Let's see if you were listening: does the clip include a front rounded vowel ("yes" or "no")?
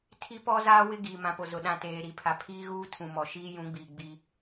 no